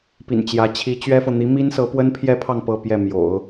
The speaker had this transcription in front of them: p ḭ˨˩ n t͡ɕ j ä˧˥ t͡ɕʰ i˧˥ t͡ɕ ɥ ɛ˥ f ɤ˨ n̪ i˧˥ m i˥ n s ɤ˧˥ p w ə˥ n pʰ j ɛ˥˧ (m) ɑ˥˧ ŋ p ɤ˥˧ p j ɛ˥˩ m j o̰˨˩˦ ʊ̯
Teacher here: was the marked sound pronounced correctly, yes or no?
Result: no